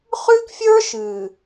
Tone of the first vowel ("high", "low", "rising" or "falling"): high